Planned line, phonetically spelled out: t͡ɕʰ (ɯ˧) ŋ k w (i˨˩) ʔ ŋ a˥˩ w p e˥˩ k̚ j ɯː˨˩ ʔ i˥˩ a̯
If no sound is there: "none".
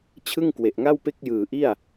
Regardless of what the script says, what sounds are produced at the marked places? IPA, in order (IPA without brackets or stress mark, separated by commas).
ɯ˥˩, e˨˩